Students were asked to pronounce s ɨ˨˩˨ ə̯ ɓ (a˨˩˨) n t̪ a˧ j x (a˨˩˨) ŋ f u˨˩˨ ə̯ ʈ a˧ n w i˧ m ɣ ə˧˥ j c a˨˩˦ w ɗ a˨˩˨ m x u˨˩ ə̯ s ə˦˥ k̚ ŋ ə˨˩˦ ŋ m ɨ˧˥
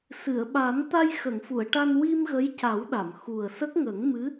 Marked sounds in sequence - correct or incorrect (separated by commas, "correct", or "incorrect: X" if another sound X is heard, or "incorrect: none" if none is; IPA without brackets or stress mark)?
incorrect: a˨˩˦, incorrect: ə˨˩˨